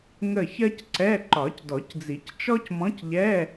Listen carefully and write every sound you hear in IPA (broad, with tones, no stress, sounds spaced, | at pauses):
ŋ ə˦˨ ç ɜ˥ c ǀ ɛ˧˥˧ ǃ ɒ˨˩˦ c d ɔ˨˩˦ c d͡z i˨˩˦ c t͡ʃ ɔ˥ c m ɔ̃˧˥ c ʎ ɛ˧˥˧